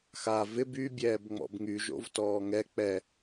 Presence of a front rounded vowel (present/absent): present